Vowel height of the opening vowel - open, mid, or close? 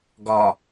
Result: open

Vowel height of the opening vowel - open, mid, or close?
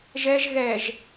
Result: mid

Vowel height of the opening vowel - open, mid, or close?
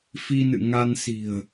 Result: close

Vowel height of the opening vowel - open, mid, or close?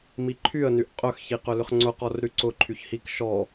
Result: close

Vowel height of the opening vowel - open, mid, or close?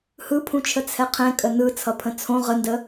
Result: close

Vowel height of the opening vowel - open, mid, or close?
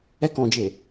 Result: mid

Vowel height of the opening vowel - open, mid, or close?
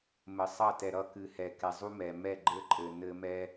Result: mid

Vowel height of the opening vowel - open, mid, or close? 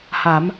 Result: open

